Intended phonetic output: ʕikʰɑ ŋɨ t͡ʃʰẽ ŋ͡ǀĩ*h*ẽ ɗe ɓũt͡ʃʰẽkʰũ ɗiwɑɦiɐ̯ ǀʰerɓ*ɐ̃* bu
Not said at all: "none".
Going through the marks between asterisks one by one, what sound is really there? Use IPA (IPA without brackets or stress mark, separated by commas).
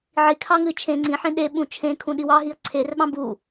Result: ħ, ɑ̃